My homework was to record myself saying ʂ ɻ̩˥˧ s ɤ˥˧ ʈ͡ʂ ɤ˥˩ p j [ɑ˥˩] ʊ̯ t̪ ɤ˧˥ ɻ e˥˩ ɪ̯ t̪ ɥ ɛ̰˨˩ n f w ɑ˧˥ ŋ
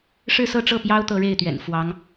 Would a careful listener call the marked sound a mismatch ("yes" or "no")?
yes